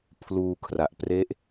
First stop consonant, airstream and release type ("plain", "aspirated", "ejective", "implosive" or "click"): aspirated